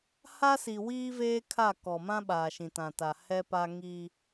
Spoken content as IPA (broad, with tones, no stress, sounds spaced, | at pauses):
h a˦ s i˨ w iː˦ v eː˦ kʰ a˦˨ k ɔ˨ m ã˦ ɓ aː˨ ʃ ĩ˨ t ã˨ t a˨ h ɛ˦ p a˦ ŋ i˦